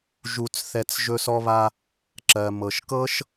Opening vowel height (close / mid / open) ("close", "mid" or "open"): close